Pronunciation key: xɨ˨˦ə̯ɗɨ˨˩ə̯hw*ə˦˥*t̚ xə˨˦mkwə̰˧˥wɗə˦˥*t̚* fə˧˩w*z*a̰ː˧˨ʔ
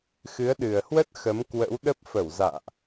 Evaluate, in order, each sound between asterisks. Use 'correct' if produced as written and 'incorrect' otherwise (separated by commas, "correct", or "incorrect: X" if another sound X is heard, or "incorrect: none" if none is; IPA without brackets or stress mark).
correct, incorrect: p̚, correct